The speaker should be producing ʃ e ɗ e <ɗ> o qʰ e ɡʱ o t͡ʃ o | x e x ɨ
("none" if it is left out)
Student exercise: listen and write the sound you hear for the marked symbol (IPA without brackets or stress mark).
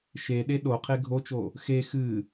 ɗ